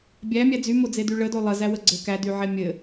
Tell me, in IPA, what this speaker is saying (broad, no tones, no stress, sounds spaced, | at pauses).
bʲ æ mʲ æ d͡z y m o d͡z e d y ɭ ə d o lˠ ə z æ w ə ɡ͡ǀ ɘ k æ d y ʕ e mʲ ɘ